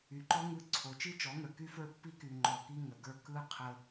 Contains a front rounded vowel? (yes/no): yes